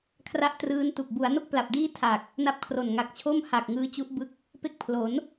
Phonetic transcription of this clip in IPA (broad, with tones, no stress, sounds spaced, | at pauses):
kʰ r a˥˩ ʔ t r ɯː˦˥ n t u˨˩ k̚ b u˩˦ a̯ n o˥˩ k̚ p l a˨˩ p̚ d iː˥˩ tʰ a˨˩ k̚ | n a˦˥ p̚ kʰ r o˨˩ n ŋ a˨˩ k̚ t͡ɕʰ o˥˩ m h a˨˩ k̚ ŋ ɯː˦˥ t͡ɕ u˦˥ ʔ b ɯ˦˥ k̚ | p e˦˥ k̚ pʰ l o˩˦ n